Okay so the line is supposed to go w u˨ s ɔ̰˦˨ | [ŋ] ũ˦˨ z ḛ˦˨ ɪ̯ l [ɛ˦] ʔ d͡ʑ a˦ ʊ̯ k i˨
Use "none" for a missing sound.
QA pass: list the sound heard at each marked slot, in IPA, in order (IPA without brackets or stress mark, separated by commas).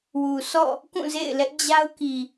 k, ɛ˦